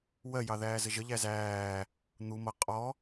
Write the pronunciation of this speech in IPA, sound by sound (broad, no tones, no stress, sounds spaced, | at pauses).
w ɜ j ɑ ð æː z ə ʒ ə ʎ æ z æː | n̪ u m ʌ qʼ ɔ